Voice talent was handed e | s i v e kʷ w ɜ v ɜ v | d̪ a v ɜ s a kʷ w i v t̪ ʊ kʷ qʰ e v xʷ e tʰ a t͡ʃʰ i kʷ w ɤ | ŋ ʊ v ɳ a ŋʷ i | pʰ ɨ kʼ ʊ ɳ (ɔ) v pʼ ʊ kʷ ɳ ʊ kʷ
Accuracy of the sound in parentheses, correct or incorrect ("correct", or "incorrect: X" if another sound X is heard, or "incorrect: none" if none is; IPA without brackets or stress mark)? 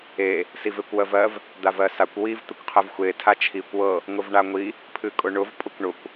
incorrect: ʊ